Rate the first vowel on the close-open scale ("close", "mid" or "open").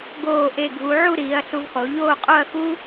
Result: mid